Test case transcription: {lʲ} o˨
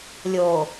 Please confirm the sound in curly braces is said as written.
yes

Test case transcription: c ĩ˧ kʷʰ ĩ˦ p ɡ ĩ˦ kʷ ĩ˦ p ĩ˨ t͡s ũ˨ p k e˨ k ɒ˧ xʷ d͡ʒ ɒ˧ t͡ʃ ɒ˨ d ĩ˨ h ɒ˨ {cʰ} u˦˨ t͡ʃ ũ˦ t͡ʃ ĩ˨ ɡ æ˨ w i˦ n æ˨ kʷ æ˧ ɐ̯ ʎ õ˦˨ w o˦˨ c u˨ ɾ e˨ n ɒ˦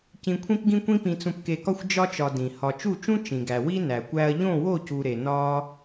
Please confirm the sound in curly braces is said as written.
no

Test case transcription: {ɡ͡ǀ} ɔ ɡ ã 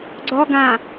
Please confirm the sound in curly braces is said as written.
yes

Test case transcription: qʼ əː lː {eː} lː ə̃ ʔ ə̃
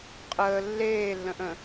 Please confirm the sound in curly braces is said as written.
yes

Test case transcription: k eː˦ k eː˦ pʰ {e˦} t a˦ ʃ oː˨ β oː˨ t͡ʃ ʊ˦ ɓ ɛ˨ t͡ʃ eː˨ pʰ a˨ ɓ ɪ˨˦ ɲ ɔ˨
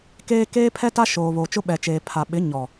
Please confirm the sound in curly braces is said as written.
no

